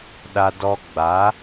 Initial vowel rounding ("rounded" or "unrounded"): unrounded